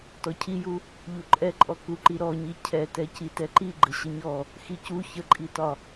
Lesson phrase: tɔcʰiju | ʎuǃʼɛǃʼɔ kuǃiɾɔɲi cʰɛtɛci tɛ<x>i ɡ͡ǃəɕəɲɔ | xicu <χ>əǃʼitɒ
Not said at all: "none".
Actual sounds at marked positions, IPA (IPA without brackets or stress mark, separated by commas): ǃ, ç